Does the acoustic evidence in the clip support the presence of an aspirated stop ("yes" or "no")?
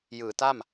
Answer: no